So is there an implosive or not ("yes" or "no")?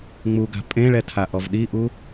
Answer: yes